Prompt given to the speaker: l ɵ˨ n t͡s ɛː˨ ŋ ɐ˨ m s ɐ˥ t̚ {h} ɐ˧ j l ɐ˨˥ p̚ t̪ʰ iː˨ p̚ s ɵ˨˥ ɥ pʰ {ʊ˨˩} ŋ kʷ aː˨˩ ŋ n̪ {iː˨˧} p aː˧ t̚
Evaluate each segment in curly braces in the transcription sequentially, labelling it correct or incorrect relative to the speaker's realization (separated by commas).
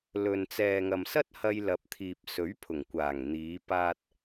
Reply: correct, correct, correct